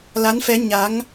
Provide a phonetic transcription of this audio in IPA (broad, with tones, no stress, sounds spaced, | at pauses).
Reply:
l a˨˦ n f ɛ˨˦ ɲ a˨˦ ŋ